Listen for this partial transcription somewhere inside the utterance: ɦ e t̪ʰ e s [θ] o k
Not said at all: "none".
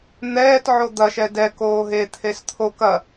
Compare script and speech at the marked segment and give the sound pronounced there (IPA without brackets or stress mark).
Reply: t̪ʰ